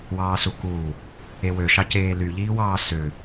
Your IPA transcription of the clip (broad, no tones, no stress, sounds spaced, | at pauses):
w ɑː s u k uː | e w ø ʃ ɑ c eː l y ʎ iː w ɑː s ø